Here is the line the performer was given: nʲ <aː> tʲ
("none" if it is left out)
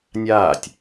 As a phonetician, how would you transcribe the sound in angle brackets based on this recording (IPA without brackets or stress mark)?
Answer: aː